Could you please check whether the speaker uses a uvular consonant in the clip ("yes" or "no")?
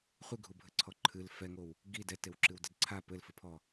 yes